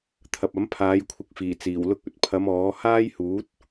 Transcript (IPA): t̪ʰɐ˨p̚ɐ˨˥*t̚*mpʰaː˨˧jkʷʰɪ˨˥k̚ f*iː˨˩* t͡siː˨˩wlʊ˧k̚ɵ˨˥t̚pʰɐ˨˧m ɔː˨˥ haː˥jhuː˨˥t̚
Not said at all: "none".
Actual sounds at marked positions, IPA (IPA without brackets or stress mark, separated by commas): none, iː˨˩